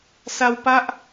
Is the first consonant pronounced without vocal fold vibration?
yes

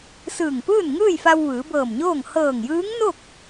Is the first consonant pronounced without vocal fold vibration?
yes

